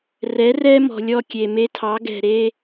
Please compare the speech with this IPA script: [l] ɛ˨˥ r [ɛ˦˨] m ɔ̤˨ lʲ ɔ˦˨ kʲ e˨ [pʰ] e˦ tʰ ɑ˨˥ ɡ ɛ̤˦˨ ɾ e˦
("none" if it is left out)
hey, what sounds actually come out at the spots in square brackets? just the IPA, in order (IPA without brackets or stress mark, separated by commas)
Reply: r, ɛ˦, m